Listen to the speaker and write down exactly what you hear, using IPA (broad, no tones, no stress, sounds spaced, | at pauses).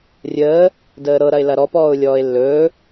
rʲ əː | d əː ɾ ɤ ɾ ɐ ɪ̯ l ɐ ɾ ɔ p ɔː ʊ̯ lʲ ɔː ɪ̯ lː ɵː